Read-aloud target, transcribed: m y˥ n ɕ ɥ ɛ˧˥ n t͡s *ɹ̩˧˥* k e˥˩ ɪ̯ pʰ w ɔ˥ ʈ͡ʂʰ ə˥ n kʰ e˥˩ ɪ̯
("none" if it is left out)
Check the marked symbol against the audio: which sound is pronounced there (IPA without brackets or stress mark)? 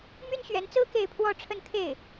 ɹ̩˥